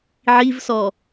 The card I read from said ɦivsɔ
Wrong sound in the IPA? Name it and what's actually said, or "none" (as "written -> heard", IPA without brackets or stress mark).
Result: ɦ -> ʕ